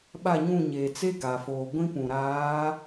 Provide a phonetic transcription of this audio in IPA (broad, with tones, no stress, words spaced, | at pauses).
ɓa˦˨ɲũ˦˨ɲeː˨ t͡se˦ɡa˨foː˨ ɡʷĩ˦ pũ˨ɾaː˨˦